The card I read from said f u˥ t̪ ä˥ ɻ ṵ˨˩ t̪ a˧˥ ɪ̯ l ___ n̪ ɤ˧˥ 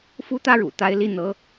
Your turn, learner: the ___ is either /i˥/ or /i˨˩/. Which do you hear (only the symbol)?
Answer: i˥